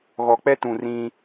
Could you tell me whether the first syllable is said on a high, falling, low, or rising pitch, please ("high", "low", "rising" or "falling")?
low